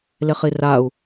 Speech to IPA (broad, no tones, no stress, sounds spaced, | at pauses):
l e χ i r a u̯